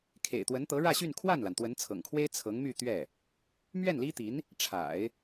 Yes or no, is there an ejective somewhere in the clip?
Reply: no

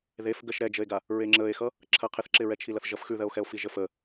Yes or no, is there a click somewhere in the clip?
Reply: yes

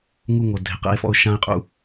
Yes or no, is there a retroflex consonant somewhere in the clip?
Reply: no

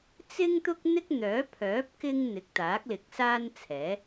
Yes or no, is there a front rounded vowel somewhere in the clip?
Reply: yes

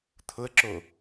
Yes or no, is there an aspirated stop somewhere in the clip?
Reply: yes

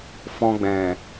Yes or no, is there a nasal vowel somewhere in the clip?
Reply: yes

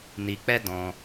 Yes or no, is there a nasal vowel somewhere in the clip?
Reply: yes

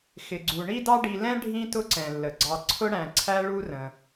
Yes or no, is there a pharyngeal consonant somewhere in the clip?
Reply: no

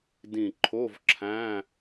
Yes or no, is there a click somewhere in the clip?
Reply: yes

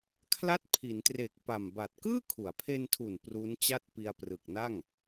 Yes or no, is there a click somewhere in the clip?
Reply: no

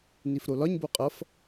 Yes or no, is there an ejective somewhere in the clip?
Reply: yes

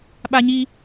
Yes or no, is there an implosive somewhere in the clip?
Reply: yes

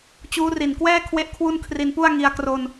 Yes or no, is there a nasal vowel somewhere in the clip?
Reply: no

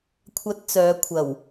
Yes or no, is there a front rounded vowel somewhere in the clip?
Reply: yes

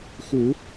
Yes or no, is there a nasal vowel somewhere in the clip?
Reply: no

